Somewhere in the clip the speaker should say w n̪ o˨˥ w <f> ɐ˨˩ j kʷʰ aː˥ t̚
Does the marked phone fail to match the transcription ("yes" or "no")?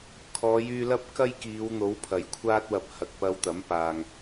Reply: yes